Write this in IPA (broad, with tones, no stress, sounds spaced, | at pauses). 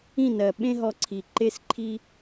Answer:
ĩ˦˨ n ɜ˨ ɓ ẽ˦ ɦ ɔ˧ ǀʰ i˨ ǃ e˧ s ǃʰ i˦